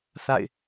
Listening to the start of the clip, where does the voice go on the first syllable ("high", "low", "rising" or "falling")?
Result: falling